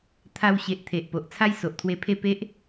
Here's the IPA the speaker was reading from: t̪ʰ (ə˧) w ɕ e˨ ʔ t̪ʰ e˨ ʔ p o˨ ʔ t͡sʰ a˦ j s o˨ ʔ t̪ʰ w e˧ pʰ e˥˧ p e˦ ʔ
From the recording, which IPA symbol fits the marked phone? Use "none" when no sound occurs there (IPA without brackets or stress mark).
a˧